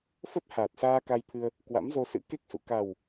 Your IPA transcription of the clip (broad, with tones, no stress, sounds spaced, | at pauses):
f ə˦˥ t̚ h aː˨˩ t̚ s aː˧ k a˧ j t̪ʰ ɨ˧ ə̯ | k w a̰˧˥ m z o˧ s ɨ̰˧˥ k e˦˥ k̚ s ṵ˧˨ k a˨˩ w